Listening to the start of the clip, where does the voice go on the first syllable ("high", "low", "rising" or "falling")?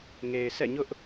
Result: low